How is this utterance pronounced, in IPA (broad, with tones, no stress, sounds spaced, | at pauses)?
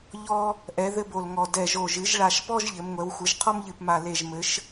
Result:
ʎ ɔ˦ | ʔ ɛ˩˧ ð ɘ˦ b o˨˩ l ŋ ɔ˨˩ d ɛ˨˩ ʒ o˨˩ ʒ ɨ˩˧ ʒ ɭ a˨˩ ʃ p ɔ˦ ʒ ʎ ɘ˩˧ m ŋʷ ɛ˩˧ w xʷ ɨ˩˧ ʒ qʰ ɔ˦ m ʎ ɨ˨˩ p m a˨˩ l e˨˩ ʒ m ɘ˩˧ ʃ